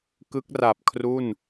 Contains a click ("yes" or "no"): no